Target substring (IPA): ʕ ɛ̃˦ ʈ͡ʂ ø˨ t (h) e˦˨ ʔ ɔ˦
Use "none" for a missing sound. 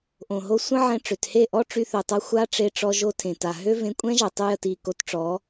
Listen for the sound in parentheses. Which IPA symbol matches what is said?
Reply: h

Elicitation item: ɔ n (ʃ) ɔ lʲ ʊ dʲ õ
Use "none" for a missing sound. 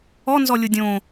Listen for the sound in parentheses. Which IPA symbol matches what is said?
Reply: z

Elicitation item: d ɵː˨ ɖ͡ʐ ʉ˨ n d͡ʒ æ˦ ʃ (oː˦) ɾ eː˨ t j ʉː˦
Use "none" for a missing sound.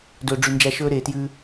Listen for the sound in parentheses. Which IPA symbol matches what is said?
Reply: ɵː˦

